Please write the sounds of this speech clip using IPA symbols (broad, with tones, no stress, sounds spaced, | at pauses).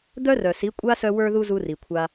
d̪ œ˦ r œ˨ s i˨˦ kʷʼ a˦ s œ˧ w ə˞˧ ð u˧ z u˧ r i˨ kʷʰ a˧